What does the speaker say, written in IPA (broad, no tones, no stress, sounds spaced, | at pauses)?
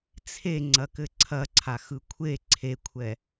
t͡sʰ e ŋ͡ǀ ɐ k ɘ ǀʰ ɐ ǀʰ a x ɯ kʷʰ e ǀʰ e kʷʰ ɛ